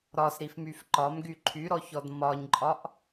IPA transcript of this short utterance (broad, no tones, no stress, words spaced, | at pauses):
ɾɒsɾifmyf ǃɒmɡy ǃʰyɾɔçɔd mɒɲǃʼɒʔ